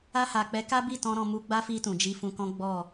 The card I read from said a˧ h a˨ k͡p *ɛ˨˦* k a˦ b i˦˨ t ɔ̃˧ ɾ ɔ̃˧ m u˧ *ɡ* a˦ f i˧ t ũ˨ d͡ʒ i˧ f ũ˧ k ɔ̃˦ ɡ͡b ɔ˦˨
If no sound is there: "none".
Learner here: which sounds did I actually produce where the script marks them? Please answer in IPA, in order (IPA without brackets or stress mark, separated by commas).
ɛ˨˦, ɡ͡b